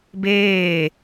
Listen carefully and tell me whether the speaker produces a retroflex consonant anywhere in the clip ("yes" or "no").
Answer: no